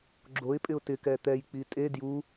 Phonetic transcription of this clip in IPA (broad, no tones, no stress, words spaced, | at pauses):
ɡ͡ǁoɪ̯pʼɪʊ̯ tɪkɛ t̪ɛjk͡pi tʼe dju